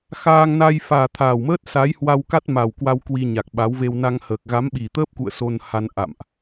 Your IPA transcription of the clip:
x aː˧ ŋ n a˧ j f aː˨˩ t̪ʰ a˨˩ w m əː˦˥ t̚ s aː˨˦ j h w a˧ w k a˦˥ t̚ m a˨˩ w k w a˧ w k w i˧ ɲ a˨˩ k̚ ɓ a˨˦ w v e˧ w n a˧ ŋ h əː˨˩ k̚ ɣ a˨˦ m ɓ i˨˩ t̪ əː˦˥ p̚ k ṵ˧˨ ə̯ s o˧ n h a˧ n ʔ a̰˧˨ m ʔ

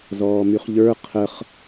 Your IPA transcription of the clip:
z ɔː m y χ ʎ ə˞ qʰ ə χ

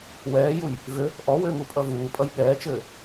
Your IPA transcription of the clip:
w ɛː j u j | v ʏ | ʔ ɔ w ʏː ŋ u pʼ ʌ v uː pʼ ʌ j ɠ ɛː t͡ʃ ɘː

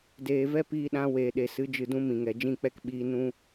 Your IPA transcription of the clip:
d eː˨ v ɛ˦ p iː˧ ɗ ã˧ w eː˨ ɗ e˨ s ɨ˨˦ d͡ʒ ɨ˨ d ũ˧ m ĩ˨ ŋ ɛ˨ d͡ʒ ĩ˦˨ k͡p ɛ˦ k ɓ iː˧ n ũ˧

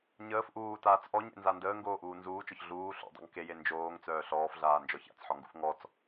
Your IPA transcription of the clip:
ɲ əː f ʔ uː t aː t͡s ʔ ɔ ɲ ḛ n z a n d əː ŋ ɡ oː ʔ uː n z uː t͡ʃ ɔ ç ɮ uː ɬ o̰ dˤ ṵ ŋ k e j e n d͡ʒ oː ŋ t͡s œː ɬ ɔː f ɮ aː n d͡ʒ ɔ ç a̰ t͡s ħ ɔ ŋ ɡ ṵ f ŋ ɔ t͡s

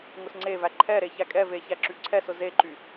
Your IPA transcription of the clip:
ŋ ʊ s ŋ͡ǀ e v æ ǃʰ ɛ ɾ e ç æ kʼ ɛ v e ç æ ǁ y ǀʰ ɛ s ʊ z e ǃ y

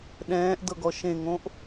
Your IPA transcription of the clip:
ɗ ɛ̃ː ʔ d ɤ ɡ ɔ ʃ ẽ ŋ õ ʔ

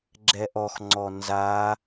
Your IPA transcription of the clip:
ɡ͡ǁ ɛ ʔ ɔ x ŋ͡ǀ ɔ n z a

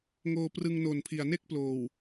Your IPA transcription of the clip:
ŋ oː˧ p r ɯ˧ ŋ n o˨˩ n pʰ i˨˩ a̯ n e˥˩ k̚ p l oː˨˩ w

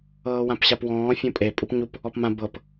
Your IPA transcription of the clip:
ɤː w ã p ɕ a p w ɔ̃ː fʲ õ pʼ e pʼ u p ɲ u p | ɔ p m ã b ɤ p

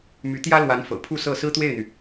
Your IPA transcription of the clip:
m y˧˥ t̪ j ä˥ l w a˧˥ n f ɤ̰˨˩ pʰ u˥˧ s ɤ˥˩ s ɹ̩˥ t̪ w e˥˩ ɪ̯ n̪ y˩

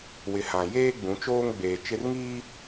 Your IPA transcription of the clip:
w ɪ˨ h ã˨ j eː˦ ɡ͡b ũ˨˦ t͡ʃ oː˦ ŋ ɡ͡b eː˨ t͡ʃ ɪ˦ r ŋ iː˦

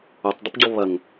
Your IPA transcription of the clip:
o tˤ dˤ ə p ɟ ɔ β ɐ ŋ

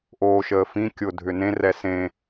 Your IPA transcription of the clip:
ʔ oː ʃ əː f ĩ kʲ ʊ dʱ ʏ n ẽ r ɛ s ẽ

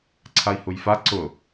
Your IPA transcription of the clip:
ǀʰ a i̯ h u j f a ǀ ʊ

